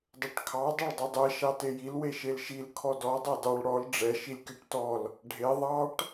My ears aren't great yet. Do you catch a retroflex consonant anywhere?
yes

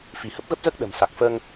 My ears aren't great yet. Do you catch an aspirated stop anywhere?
no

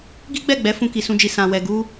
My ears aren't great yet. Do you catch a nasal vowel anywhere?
yes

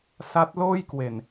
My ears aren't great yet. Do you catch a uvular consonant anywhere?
no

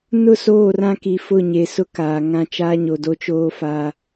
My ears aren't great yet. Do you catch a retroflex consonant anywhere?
no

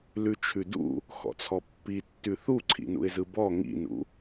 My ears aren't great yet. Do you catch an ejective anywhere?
no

